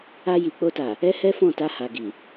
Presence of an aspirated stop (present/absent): absent